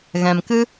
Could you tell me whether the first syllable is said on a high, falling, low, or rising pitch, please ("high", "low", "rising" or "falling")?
low